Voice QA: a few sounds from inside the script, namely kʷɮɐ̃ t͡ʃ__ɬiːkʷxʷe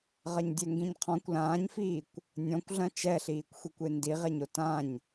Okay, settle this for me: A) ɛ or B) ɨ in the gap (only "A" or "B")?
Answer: A